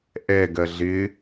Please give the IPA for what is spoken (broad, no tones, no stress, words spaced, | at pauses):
ʔɛɡɜ ɮɪ